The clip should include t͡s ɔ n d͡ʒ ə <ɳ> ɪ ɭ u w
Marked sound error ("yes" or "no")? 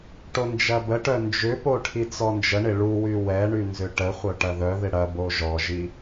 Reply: no